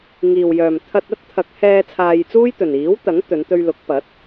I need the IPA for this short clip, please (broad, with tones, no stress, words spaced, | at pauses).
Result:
ŋiː˨wjœː˨m t̪ʰɐ˧t̚ɐ˥t̚ t̪ʰɐ˨˥k̚hɛː˧ t͡sʰaː˧jt͡suː˥jt̪ɵ˨n iː˨˥w t̪ɐ˨˥ŋt̪ɵ˨˧n t̪ɵ˧ɥlʊ˨˥k̚ pɐ˨˥t̚